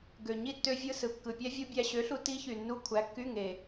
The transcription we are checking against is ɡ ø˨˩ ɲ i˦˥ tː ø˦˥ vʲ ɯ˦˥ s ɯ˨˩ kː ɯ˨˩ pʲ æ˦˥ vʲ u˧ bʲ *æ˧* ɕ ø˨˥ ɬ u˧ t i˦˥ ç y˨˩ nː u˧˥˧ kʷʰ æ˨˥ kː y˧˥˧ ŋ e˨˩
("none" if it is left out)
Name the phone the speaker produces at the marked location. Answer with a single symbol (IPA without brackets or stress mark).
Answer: æ˧